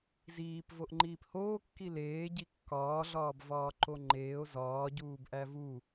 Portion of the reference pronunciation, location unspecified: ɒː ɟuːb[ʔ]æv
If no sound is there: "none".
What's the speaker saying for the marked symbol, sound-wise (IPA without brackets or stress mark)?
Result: ʔ